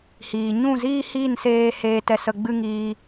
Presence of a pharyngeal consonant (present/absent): absent